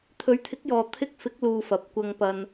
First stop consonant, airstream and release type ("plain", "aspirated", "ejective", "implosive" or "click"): aspirated